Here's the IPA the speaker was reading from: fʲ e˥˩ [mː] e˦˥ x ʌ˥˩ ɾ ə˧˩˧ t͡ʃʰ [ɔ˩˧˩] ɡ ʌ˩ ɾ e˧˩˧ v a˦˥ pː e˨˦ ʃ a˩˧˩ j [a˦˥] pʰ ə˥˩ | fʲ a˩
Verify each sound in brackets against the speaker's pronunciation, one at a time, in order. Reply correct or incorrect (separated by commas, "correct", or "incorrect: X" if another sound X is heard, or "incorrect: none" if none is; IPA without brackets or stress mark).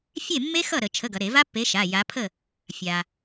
correct, incorrect: ə˩˧˩, incorrect: a˨˦